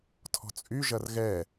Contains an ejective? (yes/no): yes